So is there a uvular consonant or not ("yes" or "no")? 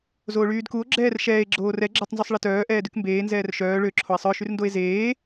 no